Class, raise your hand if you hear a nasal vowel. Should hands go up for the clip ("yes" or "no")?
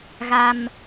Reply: no